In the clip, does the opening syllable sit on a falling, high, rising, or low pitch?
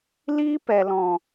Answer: high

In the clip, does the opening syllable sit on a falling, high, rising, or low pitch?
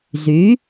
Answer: rising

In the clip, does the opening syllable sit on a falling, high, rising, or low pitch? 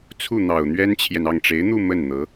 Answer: falling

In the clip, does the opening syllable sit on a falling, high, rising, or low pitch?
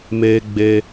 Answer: high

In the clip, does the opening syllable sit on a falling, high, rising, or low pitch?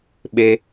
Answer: high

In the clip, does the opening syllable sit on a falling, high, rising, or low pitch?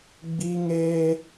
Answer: high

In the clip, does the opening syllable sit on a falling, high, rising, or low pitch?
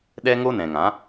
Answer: high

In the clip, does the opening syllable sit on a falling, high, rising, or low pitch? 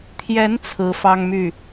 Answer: rising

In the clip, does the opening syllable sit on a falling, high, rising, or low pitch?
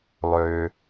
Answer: low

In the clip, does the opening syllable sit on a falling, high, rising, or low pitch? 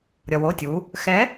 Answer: low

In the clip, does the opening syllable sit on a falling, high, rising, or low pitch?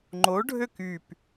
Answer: rising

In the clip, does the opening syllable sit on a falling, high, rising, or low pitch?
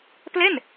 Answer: falling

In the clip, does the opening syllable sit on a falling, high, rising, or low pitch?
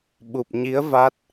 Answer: low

